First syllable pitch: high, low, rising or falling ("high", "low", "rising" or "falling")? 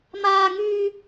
high